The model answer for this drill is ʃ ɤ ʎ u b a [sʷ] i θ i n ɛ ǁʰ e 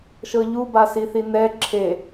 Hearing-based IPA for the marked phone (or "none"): s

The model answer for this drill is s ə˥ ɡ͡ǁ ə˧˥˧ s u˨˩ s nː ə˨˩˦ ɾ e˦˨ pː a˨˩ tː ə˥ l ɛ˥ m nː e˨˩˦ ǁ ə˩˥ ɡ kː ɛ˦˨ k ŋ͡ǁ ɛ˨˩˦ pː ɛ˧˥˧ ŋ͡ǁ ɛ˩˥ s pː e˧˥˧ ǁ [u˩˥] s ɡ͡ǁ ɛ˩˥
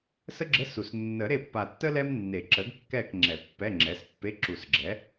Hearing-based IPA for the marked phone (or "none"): u˨˩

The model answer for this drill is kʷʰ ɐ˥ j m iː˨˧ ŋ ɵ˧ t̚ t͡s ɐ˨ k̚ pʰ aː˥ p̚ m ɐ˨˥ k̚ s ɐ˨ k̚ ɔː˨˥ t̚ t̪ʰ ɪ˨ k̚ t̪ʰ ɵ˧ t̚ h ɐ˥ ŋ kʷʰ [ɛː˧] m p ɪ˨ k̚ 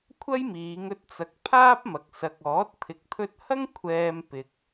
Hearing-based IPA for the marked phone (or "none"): ɛː˧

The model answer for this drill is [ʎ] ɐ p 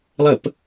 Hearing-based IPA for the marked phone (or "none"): lˠ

